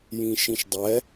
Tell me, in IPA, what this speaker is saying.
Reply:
jĩʃĩʃdˤɛ

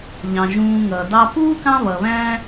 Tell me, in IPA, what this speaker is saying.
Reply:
ʎɑ̃˩ ʒũː˨ŋʌː˩ dɑ˦ puː˥kɑ̃˦ βʌ˨βæ̃˥

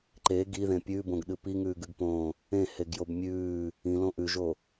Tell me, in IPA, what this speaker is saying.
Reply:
ǃe ɡiðẽ pʲʉːbõɡɗɨ piŋʉːɡɨɡpõː | ẽheɡjob mʲʉː | ĩlõ ʔʉʒo

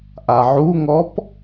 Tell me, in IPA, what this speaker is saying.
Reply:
ʔaʕuŋɔp

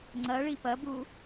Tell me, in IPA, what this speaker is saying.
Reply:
ŋ͡ǀɐɭi pɐbu

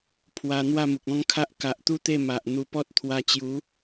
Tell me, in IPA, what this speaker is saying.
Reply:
pʰwa˧ n̪wa˥˧mu˨k̚ɔ̃˦ŋkʰa˦ʔ ka˨ʔt̪u˥˧t̪e˥˧ ma˨ʔ n̪u˧pɔ˦t̚ t̪ʰwa˧t͡ɕju˨˦

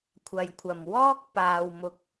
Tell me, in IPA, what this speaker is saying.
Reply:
kʷʰɐ˨˩jkʷʰɐ˨˩m wɔː˥k̚ paː˨wmʊ˨k̚

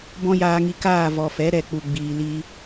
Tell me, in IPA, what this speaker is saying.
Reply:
bɔ̃˧ jaː˧ŋi˧kaː˦˨ vɔ˨fɛ˨˦ɾɛ˨ k͡pu˨ɡ͡biː˨ li˧

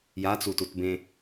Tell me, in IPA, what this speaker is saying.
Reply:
jat͡sututbẽ

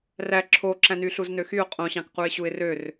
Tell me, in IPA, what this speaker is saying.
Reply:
ræ ǁʰoǁæ̃nyɬuz nøxyʊ̯ qʼõɕɑ̃kquɪ̯ ɕuɪ̯rør

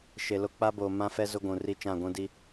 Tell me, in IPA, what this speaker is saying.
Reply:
ʃe˨lo˦ k͡pa˦boː˨ mã˦fɛ˦zʊ˦ ɡʷũ˨ ri˦t͡ʃã˦˨ɡʷũ˦ di˦

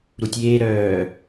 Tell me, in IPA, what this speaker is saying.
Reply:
ɾutʲeː ɾœː

